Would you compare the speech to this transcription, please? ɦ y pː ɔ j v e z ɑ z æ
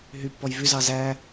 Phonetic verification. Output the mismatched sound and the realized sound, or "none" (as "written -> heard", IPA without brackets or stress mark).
e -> y